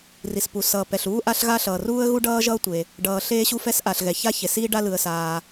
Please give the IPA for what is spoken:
r i˩ s p u˩ s ʌː˩ p ɛ˩ ɬ uː˥ ʔ a˥ ɬ ɣ a˥ ɬ ʌː˩ r uː˥ ə̯ ɣ u˥ ɖ ʌː˥ ʒ ʌː˥ tʷ e˩ | ɖ ʌː˩ ɬ eː˥ ɕ u˥ f ɛ˥ s ʔ a˩ ɬ ɣ ɛ˩ ç a˥ ç e˩ s iː˥ ɖ a˥ l ɯ˩ ə̯ s aː˩

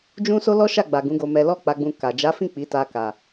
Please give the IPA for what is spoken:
d͡ʒ ũ˦ s o˦ l ɔ˦ ʃ a˦˨ ɡ͡b a˨ ɡ ũ˨˦ ɡ o˧ m ɛ˧ l ɔ˦ k͡p a˧ ɡ͡b ũ˧ k a˨ d͡ʒ a˨˦ f ĩ˦˨ k͡p i˨˦ t a˧ k a˨

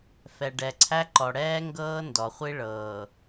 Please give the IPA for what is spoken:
f ɛ˨ ɖ ɛ˨ ǀʰ æ˦ ǃ ɔ˨ ɽ ɛː˦ ŋ ɡ ɤː˦ n d ɔ˨ χʷ i˦ ɭ ɤː˨

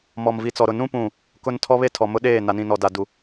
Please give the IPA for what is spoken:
m ɔ˨ m v i˨ t͡s ɔ˨ ɾ ʊ˨ n ũ˦ p ũ˦˨ | k ʊ˦ n tʰ ɔ˦ β e˦ tʰ ɔ˨ m ʊ˦ ɗ eː˦˨ n a˨ n ĩ˨ n ɔ˨ d a˨ d u˨

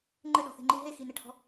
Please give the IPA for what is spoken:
ŋ͡ǃ ɘ ɗ ɔ̤ θ e̤ ŋ͡ǃ i ɦ e x i n ɛ ʈʰ ɔ̤

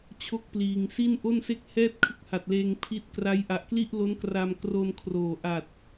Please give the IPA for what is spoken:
t͡ɕʰ o˥˩ k̚ p l iː˧ ŋ s i˥˩ n ʔ o˥˩ n s e˥˩ k̚ h ɛː˥˩ t̚ kʰ ɯ˦˥ k̚ h a˨˩ t̚ l eː˧ ŋ pʰ i˦˥ t̚ k r a˦˥ j ʔ a˨˩ ʔ k l i˥˩ ʔ l o˦˥ n k r a˧ m k r o˧ n kʰ r oː˨˩ ʔ a˨˩ t̚

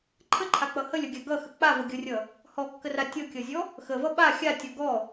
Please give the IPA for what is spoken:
ǃʰ ə ǃʰ a k͡p ʌ h ə lʲ ʌ ɡʲ a ɡ ʌ x ə k͡p a v ə ɡʲ ʌ rʲ ʌ | h ɔ kː ə r a tʲ ʌ kʲ ʌ zʲ ɔ | x ə v ʌ ɓ a xʲ a tʲ ɔ ɡ ɔ

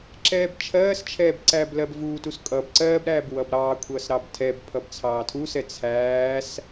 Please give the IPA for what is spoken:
ǁ ɛː b t͡ʃʰ ɜː s t͡ʃʰ ɛː b ǀ æː b l ɜ b v uː t u s kʼ ʌ b ǀ ɜː b ɾ æː b w ʌ b ɾ ɑː kʷʰ ʌː s ɾ ɑ b tʰ ɛ b pʰ ʌ b t͡sʰ ɑː tʰ u s ɛ t͡sʰ æː s

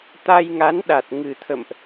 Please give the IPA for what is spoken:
t̪ a˧ j ŋ a˨˦ n ɗ a˨˩ t̚ ŋ ɨ˨˩ t̪ʰ ə̰˧˨ m ʔ

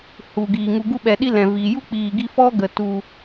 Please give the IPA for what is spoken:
h u˨ ɡ iː˨ ŋ u˨ ɡ u˧ ɓ ɛ˨ ɗ i˧ l ɛ̃˨ v iː˨ j u˦ k͡p iː˨ ɡ i˧ f ɔ˦ ɡ ə˨ t u˨

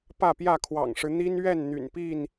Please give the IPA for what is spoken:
p ä˥˨ p j ä˥˨ kʰ w ɑ̰˨˩ ŋ ʂ ɻ̩˦ n̪ i˦ n ɥ ɛ˥˨ n n̪ y̰˨˩ n p i˥˨ n

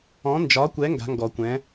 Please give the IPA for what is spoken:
ɔ̃˨˥ n d͡ʒ ɒ˨˥ kʷ ɛ˨˥ ŋ ɡ a̤˨˥ ŋ ɡ ɔ˨˩˦ kʷ ɛ̃˨˥

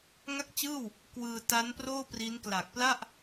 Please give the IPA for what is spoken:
ŋ a˥˩ k̚ t͡ɕ ɯː˥˩ w | k w ɯː˧ t a˦˥ n p r oː˥˩ p r i˦˥ n k l a˨˩ k̚ p l a˥˩ ʔ

